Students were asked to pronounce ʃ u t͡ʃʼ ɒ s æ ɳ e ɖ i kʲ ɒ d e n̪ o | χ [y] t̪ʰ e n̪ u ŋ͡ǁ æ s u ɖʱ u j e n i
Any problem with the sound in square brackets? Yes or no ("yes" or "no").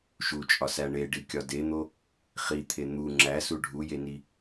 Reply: yes